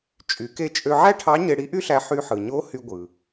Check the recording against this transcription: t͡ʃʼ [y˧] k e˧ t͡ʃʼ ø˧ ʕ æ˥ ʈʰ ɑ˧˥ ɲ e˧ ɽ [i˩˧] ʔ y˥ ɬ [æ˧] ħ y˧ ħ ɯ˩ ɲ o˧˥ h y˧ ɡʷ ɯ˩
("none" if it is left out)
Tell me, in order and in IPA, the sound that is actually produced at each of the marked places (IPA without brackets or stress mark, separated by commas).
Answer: y˩˧, i˧˥, æ˧